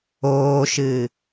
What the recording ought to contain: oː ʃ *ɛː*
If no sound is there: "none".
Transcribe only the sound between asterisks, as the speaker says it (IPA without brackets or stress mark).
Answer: ɨː